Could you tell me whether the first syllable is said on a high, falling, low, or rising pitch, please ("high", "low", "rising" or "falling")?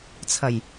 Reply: low